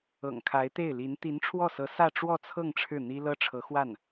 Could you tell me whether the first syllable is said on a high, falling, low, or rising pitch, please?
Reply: low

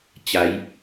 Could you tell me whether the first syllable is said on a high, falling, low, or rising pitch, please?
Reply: rising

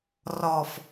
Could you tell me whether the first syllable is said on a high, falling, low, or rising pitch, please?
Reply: low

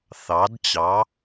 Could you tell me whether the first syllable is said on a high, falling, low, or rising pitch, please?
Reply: rising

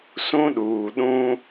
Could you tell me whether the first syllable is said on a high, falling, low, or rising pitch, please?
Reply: high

